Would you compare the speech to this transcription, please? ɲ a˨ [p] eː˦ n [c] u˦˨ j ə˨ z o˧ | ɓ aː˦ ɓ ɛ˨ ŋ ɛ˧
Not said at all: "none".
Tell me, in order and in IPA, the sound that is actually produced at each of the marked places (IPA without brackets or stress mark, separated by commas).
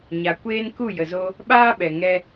kʷ, k